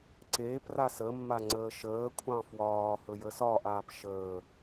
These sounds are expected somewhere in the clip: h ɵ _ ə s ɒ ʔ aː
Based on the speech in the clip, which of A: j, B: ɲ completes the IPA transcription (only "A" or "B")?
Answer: A